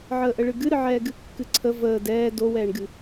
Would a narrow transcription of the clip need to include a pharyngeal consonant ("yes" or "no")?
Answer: yes